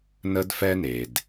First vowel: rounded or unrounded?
unrounded